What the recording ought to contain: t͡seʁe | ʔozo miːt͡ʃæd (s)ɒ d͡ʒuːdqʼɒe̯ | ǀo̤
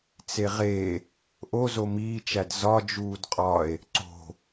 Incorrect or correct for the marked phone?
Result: incorrect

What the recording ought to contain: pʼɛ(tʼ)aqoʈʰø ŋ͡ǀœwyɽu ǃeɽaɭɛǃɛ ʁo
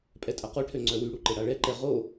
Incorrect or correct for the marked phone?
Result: correct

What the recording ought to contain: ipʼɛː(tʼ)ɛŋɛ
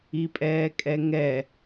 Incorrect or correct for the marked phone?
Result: incorrect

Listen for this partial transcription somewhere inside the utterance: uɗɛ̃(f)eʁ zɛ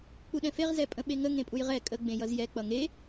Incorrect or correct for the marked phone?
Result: correct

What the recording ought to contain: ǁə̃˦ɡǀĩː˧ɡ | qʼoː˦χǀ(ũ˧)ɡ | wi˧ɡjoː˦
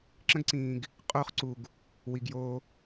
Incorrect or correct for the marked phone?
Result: incorrect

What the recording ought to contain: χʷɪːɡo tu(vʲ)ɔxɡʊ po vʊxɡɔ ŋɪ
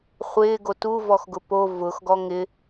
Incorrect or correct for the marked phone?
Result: incorrect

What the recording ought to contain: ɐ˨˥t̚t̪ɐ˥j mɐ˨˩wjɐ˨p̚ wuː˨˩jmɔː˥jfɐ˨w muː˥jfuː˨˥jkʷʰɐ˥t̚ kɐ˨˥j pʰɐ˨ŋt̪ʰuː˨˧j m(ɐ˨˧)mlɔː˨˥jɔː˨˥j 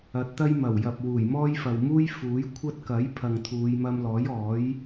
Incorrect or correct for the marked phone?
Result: incorrect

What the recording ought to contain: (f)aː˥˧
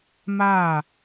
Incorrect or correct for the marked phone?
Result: incorrect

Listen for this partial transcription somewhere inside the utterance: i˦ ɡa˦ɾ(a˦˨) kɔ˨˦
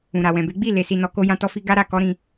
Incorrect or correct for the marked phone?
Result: correct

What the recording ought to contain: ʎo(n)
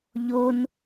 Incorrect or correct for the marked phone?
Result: correct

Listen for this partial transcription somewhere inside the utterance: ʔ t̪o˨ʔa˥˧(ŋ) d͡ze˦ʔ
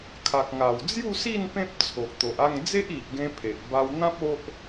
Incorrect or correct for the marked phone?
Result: correct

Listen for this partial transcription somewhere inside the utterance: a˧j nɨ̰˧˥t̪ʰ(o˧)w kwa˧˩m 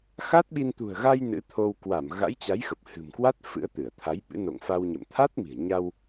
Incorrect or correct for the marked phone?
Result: correct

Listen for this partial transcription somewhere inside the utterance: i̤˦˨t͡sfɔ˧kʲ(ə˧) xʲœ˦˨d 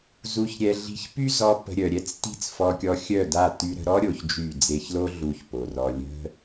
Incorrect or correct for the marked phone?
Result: incorrect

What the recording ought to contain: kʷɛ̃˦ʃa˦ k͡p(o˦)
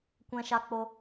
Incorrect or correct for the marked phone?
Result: correct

